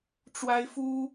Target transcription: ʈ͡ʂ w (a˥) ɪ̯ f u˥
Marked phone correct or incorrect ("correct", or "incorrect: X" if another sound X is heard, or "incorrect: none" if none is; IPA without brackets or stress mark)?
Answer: correct